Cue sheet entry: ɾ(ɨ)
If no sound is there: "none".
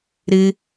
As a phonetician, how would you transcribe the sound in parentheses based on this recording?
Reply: ɨ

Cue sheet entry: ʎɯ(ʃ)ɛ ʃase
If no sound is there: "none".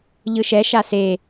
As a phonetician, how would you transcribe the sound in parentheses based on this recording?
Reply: ʃ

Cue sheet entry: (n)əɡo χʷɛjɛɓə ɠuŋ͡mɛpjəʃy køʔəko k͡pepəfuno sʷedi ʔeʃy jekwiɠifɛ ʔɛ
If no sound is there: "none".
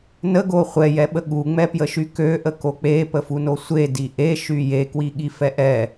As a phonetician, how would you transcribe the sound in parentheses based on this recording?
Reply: n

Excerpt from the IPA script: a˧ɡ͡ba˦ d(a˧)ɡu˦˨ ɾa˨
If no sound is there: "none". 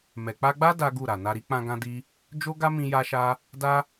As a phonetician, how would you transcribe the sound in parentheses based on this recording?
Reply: a˦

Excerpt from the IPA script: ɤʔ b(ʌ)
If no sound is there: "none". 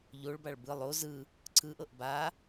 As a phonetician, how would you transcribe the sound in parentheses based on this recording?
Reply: a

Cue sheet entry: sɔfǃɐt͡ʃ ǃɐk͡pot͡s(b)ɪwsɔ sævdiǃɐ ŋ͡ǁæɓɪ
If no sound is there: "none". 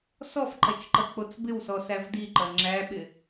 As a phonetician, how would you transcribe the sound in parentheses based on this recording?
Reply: b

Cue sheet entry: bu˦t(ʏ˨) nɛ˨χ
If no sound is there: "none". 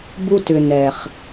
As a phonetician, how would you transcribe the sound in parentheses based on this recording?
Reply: ʏ˨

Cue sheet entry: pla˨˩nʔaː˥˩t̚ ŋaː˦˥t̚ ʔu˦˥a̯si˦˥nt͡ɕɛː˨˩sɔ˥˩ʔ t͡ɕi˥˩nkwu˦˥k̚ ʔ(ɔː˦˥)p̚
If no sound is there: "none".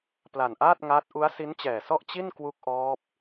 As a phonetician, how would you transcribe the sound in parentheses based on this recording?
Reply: ɔː˦˥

